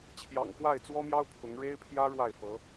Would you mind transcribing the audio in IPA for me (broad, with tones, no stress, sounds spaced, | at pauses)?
t͡ɕʰ j ɑ̰˨˩ ŋ k w a˥˩ ɪ̯ t͡s w ɔ˥ m j ɑ˥ ʊ̯ pʰ ʊ˧˥ ŋ ɻ e˥ ɪ̯ pʰ j ä˥ ɻ w a˥˩ ɪ̯ f ɤ˧˥